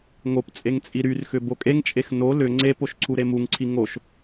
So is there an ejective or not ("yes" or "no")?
yes